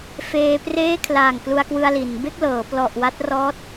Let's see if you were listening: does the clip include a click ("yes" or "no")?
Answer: no